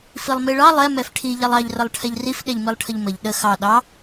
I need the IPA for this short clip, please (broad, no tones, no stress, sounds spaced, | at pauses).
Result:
f i lˠ m i ɭ ɑ lˠ ɛ m ɛ f ʈʰ i ʎ ɛ lˠ ɑ ʎ r ə lˠ ʈʰ ɛ ʎ r i f ɗ ɛ ʎ m i lˠ ʈʰ ə ʎ m ə ʎ ɗ ə x ɑ ɗ ɑ